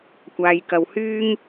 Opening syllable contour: low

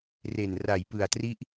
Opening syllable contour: low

